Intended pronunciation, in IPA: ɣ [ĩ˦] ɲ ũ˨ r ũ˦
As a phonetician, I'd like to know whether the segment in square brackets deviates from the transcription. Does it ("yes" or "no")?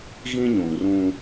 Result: no